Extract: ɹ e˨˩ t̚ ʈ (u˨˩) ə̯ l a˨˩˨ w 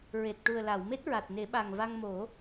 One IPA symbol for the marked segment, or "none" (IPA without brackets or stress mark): u˨˩